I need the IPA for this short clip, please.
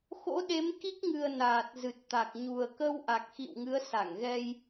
x o̰˧˥ ɗ e˨˦ m k i˦˥ k̚ ŋ ɨ˨˩ ə̯ n aː˨˩ t̚ z ɨ˨˩ t̚ t̪ a˨˩ k̚ ɲ u˨˩ ə̯ k ə˧ w ʔ a˨˩ k̚ x ḭ˧˨ w ŋ ɨ˨˦ ə̯ s a˧˩ ŋ ɣ ɛ˧ j

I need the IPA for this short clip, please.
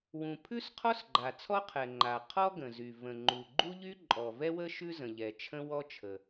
w ũ˩ pʰ ʉ˥ s qʰ ɔ˥ s ɡ͡ǃ a˩ t͡sʰ ɔ˥ qʰ ɛ˩ ŋ͡ǃ a˩ qʰ ɔ˥ ɡ ə̃˩ z y˩ v ə̃˩ ŋ͡ǃ u˩ ɡ͡ǃ u˥ ʎ y˥ ǃʼ ɔ˩ v ɛ˥ w ə˥ ʃ ʉ˥ z ə̃˩ ʎ ɛ˩ t͡ʃʰ ə̃˥ w ɔ˥ t͡ʃʰ ə˩

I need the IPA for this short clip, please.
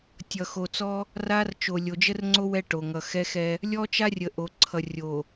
tʲ ʌ˨ x o˨ t͡s ɔ˦ | r a˦ r t͡ʃ o˨ lʲ o˨ d͡ʒ ə˦ r ŋ͡ǀ o˦ w ɛ˦ ʈ o˨ ŋ ʌ˨ x ɛ˦ x ɛ˦ | lʲ ɔ˦ t͡ʃ a˦ rʲ ə˨ ʔ o˨ ǀʰ ʌ˨ rʲ o˨

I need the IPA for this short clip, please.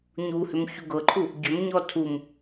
ɲ u h ʏ m ç u ɡ ɤ ǃʰ u | ɟ ʏ m ɲ ɔ tʰ u m

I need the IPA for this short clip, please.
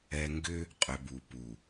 ɛ˨ ŋ ɡ ʏ˦ | qʼ ʏ˨ b u˨ p u˨

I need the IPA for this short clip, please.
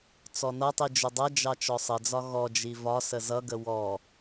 t͡s ɔ n ʌ tˤ i d͡ʒ ʊ dˤ ʌ d͡ʒ ɑ t͡ʃ ɔ sˤ ə d͡z ɒ ɣ ɔ d͡ʒ i v ɒ s ə z ʌ ɡ ə w ɔ

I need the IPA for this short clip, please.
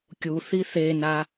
kʲ u θ i θ e n a

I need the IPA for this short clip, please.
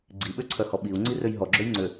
ɡ͡ǀ i ɓ ø ǀʰ œ h ɔ ɓ i u̯ ŋ͡ǀ i r ø j ɦ ɔ ɡ͡ǁ ø j ŋ͡ǀ ø

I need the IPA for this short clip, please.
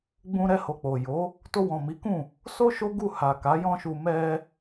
ɡ͡b ũ˧ ɾ ɛ˧ h o˨ k͡p o˨ j o˨˦ | t o˧ w ɔ̃˨ m i˨˦ k ũ˦˨ | s o˦ ʃ o˦ ɡ u˦˨ h a˨ k a˨˦ j ɔ̃˦ ʃ u˧ m ɛ˧

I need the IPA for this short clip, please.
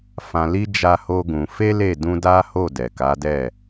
f ã˧ l i˦ d͡ʒ a˦ h o˦ ɡ ũ˧ f e˦ l e˦˨ d ũ˧ d a˦ h o˦˨ d ɛ˨ k a˨˦ d ɛ˦˨

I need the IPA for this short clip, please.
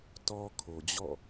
t ɔ˦ kʰ o˨ d͡ʑ ɔ̰˦˨

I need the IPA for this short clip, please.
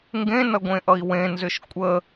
ŋ ɡ ẽ n ʌ ɡʷ ẽ ʔ ʌ i̯ w ẽ n z ʏ ʃ kʷʼ ə

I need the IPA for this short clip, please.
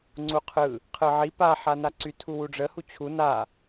ŋ͡ǀ u qʰ ɯ | qʰ ɯ ʕ i p a ħ a n a ǀ y tʰ u w u ɖ͡ʐ ə h u t͡ɕʰ u n a

